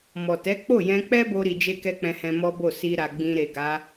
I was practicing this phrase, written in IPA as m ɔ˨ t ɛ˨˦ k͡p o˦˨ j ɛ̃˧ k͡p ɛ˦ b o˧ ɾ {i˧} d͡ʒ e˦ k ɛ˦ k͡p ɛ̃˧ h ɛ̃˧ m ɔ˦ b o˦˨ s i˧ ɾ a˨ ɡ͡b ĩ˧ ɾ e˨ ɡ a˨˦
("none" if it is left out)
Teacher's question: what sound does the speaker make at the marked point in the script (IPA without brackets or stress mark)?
i˧